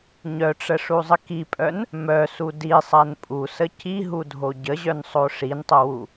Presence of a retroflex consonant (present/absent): present